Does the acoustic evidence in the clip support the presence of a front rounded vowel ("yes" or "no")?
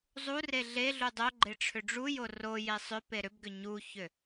yes